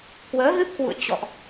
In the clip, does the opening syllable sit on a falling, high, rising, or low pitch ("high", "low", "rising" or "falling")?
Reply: rising